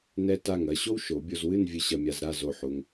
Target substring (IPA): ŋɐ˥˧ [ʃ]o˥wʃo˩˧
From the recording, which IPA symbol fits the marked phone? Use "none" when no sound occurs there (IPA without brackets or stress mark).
ɕ